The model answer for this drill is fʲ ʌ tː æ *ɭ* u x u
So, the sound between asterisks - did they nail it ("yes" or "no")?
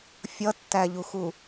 no